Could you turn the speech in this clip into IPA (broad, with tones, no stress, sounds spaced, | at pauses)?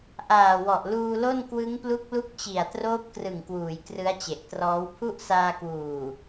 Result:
ʔ aː˨˩ w ɔ˨˩ ʔ l uː˧ l o˥˩ n k w ɯ˦˥ ŋ p l u˦˥ k̚ l u˦˥ k̚ t͡ɕ i˨˩ a̯ t r oː˦˥ p̚ k r ɯ˨˩ ŋ k w uː˩˦ j k r ɯ˦˥ a̯ t͡ɕ e˨˩ ʔ t r ɔː˦˥ w pʰ u˥˩ ʔ s aː˧ k w uː˨˩